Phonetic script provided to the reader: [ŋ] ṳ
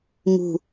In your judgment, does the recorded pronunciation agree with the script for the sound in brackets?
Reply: yes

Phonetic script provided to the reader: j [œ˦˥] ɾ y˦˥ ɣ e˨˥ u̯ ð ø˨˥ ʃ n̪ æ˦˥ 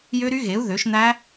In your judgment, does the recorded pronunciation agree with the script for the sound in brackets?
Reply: no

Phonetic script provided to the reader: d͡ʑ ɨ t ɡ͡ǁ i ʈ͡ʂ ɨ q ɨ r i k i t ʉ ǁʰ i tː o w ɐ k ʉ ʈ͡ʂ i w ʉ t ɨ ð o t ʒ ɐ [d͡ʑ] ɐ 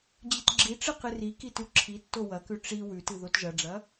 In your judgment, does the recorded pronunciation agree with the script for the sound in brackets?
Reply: no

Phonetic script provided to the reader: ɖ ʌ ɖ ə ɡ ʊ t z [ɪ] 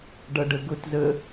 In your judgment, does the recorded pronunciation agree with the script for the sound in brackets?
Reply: no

